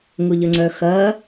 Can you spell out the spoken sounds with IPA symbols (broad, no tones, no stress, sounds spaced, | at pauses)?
ŋ ʊ ʎ ə ŋ͡ǀ œ x ɐ